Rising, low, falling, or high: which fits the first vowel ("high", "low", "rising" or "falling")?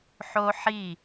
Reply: high